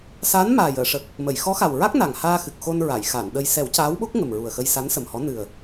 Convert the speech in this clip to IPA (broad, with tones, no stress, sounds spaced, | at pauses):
s aː˧˥ n m aː˨˩ j əː˨˩˨ ʂ ə˨˩ k̚ | m ə˨˩˨ j x ɔ˧˥ x a˨˩ w ɹ a˦˥ k̚ n a˨˩ ŋ h aː˧ x ɨ˨˩ k̚ x o˧ n ɹ a˨˩˨ j x a˨˩˨ n ɗ ə˧ j s ɛ˨˩˦ w c aː˧˥ w ɓ o˦˥ k̚ ŋ ə˨˩ m ɹ u˨˩ ə̯ x ə˧ j s a˧˥ n s ə˨˩ m h ɔ˧˥ n ɨ˨˩ ə̯